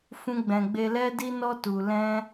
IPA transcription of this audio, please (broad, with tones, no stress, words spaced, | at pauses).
fũ˦ɡ͡bɛ̃˧ ɡ͡be˧lɛ˦di˦nɔ˦ tu˧ lɛ̃˦